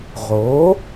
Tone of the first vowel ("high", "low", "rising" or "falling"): rising